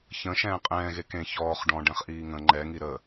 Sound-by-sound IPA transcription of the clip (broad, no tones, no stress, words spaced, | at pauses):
çə̃ʃɛ̃ː qʼɛ̃ːɣe kẽ çɔːχ ɖɔ̃ ɖɛ̃χʔiːŋə̃ ŋ͡ǃɛŋi ɾə